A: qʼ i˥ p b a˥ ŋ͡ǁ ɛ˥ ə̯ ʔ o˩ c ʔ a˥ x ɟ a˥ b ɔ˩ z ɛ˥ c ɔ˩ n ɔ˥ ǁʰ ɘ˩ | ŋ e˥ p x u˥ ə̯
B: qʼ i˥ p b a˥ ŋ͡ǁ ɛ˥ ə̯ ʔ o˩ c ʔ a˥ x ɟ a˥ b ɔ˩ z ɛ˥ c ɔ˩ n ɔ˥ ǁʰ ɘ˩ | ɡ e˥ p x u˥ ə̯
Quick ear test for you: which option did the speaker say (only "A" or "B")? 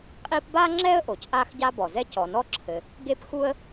B